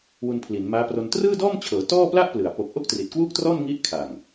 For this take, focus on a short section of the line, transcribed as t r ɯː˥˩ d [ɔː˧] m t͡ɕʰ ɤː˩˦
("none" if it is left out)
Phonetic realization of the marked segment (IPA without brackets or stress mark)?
ɔː˥˩